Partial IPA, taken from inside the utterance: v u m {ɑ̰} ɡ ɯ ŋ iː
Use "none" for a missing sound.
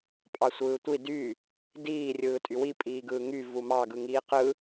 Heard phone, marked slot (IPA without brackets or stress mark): ɑ